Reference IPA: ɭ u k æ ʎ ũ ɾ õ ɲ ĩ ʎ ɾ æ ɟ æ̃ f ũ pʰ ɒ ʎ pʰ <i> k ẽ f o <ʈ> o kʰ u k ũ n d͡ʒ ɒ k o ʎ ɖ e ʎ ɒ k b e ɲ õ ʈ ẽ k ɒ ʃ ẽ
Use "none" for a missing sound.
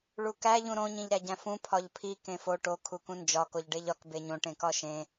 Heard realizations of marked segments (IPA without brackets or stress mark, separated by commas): i, ʈ